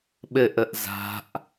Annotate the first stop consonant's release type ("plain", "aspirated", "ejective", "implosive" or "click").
implosive